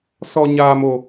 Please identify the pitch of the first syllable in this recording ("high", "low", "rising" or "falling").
high